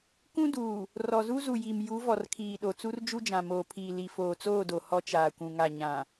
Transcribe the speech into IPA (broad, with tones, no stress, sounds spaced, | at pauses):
k ũ˦ d uː˨ | r ɔ˨ z u˦ z u˨ j i˨ m j u˨˦ v ɔ˨ r kʰ iː˨ ɗ o˨ t͡s u˦ r d͡ʒ u˦ d͡ʒ ã˨ m oː˨ pʰ iː˨ l i˨ f oː˨ t͡s oː˦˨ d o˨ h ɔ˦ t͡ʃ aː˨ kʷ ũ˨ ŋ a˨ ɲ ã˨